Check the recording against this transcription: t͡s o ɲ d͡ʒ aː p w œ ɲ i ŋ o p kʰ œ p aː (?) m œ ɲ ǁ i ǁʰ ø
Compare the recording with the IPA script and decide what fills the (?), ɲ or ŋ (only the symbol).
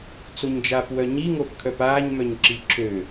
ɲ